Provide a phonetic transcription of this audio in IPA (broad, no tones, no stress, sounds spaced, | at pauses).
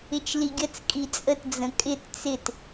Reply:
ɪ t͡ʃ l i ɡʲ ə t͡s kʼ i t͡sʼ ə t d͡z ə̃ kʼ ɪ t t͡s ɪ t